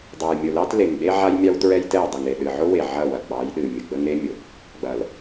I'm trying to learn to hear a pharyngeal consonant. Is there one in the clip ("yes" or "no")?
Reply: yes